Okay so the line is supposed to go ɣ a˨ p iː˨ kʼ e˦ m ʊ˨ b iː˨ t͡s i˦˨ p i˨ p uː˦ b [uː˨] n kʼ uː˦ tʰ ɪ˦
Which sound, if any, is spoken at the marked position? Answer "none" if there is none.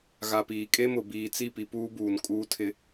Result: uː˨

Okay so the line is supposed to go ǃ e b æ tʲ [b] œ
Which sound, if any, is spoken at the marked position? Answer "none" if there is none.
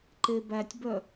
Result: b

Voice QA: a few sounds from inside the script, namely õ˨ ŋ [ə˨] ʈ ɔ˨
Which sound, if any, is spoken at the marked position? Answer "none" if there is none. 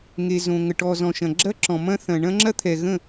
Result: ə˨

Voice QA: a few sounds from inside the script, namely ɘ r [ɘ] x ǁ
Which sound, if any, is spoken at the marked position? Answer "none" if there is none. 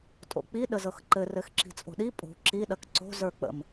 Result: ɘ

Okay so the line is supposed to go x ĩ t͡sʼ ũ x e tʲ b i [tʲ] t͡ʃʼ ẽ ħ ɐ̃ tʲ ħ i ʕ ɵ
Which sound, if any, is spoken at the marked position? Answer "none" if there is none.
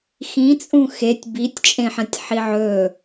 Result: tʲ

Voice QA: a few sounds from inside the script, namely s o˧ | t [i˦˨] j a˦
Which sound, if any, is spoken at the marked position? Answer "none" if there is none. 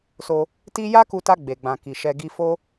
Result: i˦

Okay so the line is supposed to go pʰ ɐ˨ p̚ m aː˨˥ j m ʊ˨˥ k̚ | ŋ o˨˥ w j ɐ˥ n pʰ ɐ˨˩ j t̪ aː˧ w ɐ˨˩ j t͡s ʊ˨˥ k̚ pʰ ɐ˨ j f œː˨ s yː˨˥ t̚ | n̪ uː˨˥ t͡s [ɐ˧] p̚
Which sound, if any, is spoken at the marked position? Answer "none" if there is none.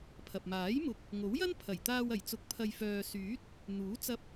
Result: ɐ˧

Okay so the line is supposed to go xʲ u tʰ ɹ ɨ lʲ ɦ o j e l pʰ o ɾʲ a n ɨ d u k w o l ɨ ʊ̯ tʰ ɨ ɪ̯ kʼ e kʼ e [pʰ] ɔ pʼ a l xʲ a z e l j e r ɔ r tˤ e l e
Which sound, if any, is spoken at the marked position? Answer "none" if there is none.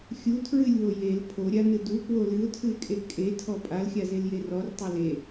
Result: tʰ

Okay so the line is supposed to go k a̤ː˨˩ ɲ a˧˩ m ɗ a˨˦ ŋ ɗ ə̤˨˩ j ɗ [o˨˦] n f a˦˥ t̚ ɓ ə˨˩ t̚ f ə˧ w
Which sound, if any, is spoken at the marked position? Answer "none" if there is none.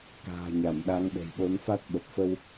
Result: o˨˦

